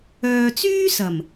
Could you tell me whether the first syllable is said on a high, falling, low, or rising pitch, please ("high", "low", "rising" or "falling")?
low